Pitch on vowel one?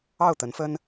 falling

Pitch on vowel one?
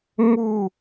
falling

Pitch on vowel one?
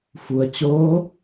low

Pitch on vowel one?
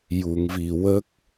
low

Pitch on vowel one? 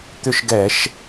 falling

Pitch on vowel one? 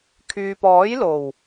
low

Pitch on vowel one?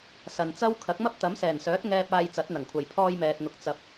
low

